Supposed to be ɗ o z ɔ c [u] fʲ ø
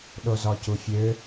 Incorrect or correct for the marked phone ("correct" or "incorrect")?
correct